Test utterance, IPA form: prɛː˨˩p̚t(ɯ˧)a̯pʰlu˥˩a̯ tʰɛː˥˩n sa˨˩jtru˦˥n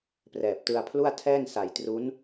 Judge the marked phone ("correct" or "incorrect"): correct